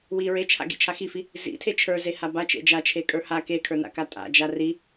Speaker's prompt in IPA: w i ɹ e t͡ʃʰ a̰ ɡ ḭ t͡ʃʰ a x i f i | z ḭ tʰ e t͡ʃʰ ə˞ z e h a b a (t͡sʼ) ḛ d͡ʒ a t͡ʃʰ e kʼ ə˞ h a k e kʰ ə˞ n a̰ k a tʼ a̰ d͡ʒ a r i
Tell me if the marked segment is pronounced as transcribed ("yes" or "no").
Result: no